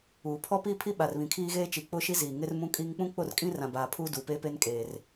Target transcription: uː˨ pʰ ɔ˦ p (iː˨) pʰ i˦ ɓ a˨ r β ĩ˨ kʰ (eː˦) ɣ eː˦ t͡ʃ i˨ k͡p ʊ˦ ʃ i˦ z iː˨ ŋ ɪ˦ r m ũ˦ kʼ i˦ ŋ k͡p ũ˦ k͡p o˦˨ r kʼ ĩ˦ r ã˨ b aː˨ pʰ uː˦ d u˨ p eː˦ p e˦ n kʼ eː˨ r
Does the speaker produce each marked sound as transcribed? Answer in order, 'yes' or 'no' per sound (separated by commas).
no, no